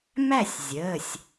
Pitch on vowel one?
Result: falling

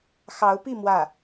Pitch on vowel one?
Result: rising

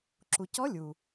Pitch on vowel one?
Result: low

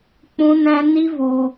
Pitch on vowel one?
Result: high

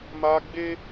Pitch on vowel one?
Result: high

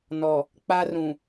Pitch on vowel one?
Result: low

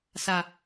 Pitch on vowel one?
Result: low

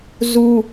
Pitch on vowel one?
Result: high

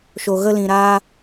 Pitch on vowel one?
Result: low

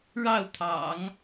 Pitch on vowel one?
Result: falling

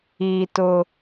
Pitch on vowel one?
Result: high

